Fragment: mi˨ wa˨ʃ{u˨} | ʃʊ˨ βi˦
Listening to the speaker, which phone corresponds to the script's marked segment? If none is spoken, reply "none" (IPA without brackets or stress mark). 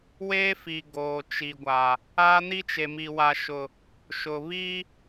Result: ʊ˨